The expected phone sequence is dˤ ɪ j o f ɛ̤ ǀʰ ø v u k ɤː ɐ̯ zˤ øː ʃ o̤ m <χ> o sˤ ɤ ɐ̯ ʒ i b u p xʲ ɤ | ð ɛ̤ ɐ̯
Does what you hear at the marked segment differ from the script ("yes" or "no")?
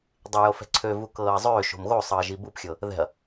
yes